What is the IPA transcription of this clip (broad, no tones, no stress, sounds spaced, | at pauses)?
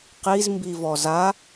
q i z m b i v ɔ z a